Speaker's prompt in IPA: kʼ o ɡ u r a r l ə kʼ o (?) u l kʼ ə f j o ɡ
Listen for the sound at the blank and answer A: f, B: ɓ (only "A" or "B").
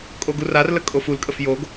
A